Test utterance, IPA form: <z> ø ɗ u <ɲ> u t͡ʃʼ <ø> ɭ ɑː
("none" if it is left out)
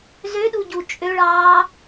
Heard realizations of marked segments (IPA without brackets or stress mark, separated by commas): z, ɟ, ø